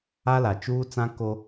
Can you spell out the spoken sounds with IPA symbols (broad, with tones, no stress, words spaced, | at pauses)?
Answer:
a˦la˨ t͡ʃuː˦t͡sã˦ ko˦